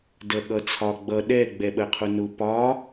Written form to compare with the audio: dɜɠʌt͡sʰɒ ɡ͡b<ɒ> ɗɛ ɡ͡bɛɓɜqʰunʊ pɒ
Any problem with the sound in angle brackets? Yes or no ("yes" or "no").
yes